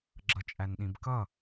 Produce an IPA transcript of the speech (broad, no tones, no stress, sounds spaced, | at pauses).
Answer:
ɡ͡ǁ ʌ t͡ʃʼ æ n ɗ ĩ b k ʌ